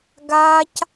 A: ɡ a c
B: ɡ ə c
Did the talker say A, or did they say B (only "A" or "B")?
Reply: A